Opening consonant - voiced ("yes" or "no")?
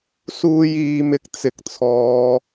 no